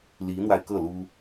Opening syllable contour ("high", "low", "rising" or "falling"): rising